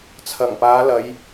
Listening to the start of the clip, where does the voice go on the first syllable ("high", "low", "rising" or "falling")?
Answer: low